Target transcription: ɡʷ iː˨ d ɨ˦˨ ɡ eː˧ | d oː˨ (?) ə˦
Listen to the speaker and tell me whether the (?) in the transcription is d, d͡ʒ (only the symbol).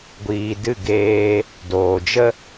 d͡ʒ